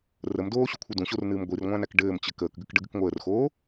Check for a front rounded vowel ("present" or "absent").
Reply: absent